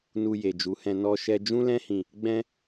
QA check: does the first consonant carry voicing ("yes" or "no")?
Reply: yes